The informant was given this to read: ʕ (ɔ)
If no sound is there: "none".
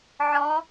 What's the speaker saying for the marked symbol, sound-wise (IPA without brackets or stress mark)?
ɔ̃